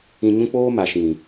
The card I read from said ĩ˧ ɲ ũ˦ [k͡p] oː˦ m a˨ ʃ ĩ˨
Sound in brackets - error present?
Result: no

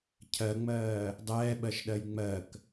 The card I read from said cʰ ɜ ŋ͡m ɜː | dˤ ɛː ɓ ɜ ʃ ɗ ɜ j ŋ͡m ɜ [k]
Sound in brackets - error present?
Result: no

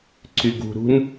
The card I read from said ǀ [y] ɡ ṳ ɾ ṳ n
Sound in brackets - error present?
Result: no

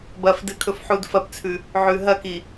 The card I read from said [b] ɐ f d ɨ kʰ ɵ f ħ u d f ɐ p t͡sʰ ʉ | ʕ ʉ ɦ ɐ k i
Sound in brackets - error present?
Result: no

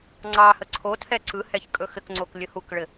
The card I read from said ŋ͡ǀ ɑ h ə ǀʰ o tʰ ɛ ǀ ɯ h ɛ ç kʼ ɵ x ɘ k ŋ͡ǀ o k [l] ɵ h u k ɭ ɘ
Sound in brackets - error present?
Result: yes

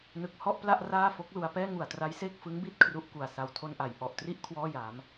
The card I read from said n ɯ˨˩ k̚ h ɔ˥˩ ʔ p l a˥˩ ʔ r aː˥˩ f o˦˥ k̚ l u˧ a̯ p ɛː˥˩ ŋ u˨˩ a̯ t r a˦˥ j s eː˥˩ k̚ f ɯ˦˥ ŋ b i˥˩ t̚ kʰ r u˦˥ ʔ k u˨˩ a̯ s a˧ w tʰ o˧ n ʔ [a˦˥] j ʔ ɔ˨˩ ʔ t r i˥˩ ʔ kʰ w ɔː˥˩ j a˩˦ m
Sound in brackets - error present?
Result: yes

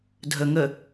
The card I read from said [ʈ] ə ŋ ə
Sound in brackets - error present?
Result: yes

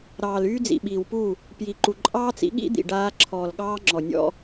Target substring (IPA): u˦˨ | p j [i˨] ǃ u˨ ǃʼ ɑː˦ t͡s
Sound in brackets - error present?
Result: no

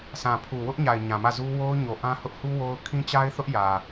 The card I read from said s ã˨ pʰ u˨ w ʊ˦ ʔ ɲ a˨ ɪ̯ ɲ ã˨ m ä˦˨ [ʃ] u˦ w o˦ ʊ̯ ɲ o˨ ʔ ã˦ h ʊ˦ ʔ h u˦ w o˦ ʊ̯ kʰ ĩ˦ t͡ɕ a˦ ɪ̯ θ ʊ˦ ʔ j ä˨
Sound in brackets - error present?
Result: yes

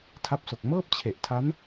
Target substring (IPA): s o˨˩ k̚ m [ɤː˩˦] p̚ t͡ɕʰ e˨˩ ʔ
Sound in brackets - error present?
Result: yes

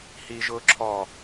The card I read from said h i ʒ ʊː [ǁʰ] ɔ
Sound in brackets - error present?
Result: no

